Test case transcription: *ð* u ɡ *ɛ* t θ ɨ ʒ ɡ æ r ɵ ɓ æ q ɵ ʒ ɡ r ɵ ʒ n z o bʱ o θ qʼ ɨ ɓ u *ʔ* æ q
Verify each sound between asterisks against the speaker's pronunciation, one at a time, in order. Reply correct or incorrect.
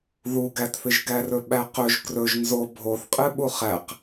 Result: correct, incorrect: æ, incorrect: χ

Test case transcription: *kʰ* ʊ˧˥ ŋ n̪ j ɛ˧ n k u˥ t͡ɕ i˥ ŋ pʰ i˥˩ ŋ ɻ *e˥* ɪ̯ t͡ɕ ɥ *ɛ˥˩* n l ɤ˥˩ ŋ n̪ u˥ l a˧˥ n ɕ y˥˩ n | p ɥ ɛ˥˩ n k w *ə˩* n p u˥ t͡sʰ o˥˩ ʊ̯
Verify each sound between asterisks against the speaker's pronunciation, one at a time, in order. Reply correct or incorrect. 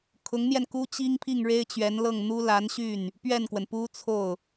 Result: correct, correct, incorrect: ɛ˧˥, correct

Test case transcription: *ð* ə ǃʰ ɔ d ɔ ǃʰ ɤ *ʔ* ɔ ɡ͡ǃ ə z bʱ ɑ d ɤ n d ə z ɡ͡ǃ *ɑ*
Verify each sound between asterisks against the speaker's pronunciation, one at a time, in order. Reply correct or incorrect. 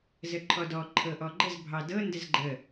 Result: incorrect: z, correct, incorrect: ə

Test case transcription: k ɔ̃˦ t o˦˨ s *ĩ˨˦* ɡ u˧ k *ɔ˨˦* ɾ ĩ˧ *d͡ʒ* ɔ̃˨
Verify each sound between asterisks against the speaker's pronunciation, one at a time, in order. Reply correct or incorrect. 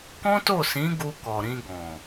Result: correct, incorrect: ɔ˨, incorrect: ɡ

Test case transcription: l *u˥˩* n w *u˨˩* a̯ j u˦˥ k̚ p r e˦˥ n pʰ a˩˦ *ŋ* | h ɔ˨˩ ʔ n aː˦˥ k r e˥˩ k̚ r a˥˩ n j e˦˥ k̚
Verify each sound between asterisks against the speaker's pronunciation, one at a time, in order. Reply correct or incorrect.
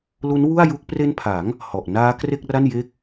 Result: incorrect: u˦˥, incorrect: u˥˩, correct

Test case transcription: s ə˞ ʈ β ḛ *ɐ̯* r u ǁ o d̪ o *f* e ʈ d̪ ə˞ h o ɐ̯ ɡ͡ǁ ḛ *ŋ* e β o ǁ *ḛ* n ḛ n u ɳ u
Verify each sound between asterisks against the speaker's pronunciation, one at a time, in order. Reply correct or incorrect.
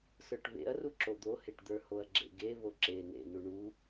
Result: correct, incorrect: h, incorrect: ɡ, incorrect: e

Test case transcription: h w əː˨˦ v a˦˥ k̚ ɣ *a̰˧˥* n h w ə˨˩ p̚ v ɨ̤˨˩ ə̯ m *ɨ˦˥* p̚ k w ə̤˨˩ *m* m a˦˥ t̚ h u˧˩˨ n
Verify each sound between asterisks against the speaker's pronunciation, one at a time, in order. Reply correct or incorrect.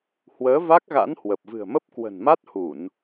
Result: correct, incorrect: ə˦˥, incorrect: n

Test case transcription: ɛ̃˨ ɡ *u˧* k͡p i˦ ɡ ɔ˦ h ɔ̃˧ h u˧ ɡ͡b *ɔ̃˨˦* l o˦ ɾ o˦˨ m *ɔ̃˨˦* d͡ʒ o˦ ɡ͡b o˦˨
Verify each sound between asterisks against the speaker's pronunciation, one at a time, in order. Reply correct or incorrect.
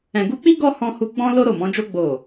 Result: correct, incorrect: ɔ̃˦, correct

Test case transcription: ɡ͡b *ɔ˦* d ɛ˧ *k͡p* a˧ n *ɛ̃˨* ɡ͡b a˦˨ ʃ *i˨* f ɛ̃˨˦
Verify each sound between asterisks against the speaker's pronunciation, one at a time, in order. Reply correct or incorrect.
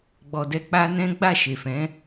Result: incorrect: ɔ˨, correct, incorrect: ɛ̃˦, incorrect: e˨

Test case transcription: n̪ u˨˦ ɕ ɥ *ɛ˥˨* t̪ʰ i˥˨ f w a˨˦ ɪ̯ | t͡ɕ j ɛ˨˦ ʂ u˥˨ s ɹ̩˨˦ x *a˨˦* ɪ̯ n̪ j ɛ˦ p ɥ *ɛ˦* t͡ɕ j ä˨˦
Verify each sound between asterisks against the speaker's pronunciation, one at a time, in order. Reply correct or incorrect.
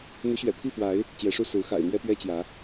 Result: incorrect: ɛ̰˨˩, incorrect: a̰˨˩, correct

